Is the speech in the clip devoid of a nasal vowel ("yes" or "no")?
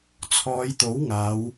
yes